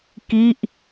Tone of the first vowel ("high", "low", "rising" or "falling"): falling